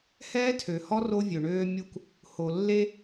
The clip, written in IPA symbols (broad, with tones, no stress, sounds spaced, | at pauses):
h ɛː˦ tʰ ø˨ h ɔ˦ r o˦ vʲ ø˨ ɳ øː˦ mʲ u˦ k | h o˨ lː e˦